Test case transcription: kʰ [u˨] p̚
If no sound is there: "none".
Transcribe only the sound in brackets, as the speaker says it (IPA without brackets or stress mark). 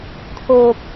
o˨